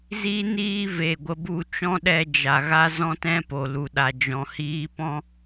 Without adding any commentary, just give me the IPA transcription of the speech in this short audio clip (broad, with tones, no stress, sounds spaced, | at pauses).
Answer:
z i˦ n iː˦ v e˨ ɡʷ ə˧ b u˦˨ t͡ʃ ɔ̃˦ ɗ ɛ˧ d͡ʒ a˨ ɣ a˦ z ɔ̃˦ t ɛ̃˦ p o˨ l u˨ ɗ a˨ d͡ʒ ɔ̃˨ h iː˧ p ɔ̃˦